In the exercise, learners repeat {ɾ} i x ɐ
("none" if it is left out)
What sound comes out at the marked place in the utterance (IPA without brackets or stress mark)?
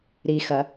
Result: ɾ